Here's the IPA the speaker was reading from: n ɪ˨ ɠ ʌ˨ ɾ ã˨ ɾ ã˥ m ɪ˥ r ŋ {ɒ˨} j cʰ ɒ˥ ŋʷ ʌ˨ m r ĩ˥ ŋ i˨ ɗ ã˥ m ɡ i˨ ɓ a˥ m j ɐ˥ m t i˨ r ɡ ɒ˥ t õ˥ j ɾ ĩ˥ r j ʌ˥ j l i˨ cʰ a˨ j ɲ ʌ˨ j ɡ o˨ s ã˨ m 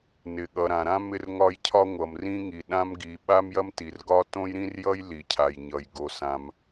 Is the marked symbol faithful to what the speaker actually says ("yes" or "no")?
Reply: no